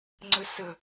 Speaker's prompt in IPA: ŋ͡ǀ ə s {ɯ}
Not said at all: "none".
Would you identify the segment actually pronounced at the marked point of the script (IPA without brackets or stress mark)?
ə